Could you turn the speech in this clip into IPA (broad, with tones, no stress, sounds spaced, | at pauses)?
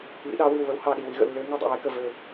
β ḭ˨˦ ɗ ɑ˨˦ w i˧˩ w β ə˨˦ w h ɑ˧˩ ɗ i˧˩ w i˨˦ ɣ ə̰˧˩ lː ø˨˦ ŋ i˧˩ dˤ ḭ˧˩ w e˨˦ k ə˧˩ v ø˧˩